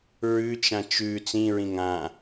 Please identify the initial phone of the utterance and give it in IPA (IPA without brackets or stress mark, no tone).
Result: ɹ